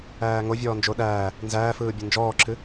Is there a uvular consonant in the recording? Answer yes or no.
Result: no